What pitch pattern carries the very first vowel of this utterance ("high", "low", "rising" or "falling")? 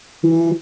high